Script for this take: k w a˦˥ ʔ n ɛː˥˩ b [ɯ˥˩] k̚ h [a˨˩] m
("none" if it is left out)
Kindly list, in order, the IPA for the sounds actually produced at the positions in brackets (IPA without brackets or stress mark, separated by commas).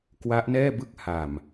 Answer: ɯ˥˩, a˨˩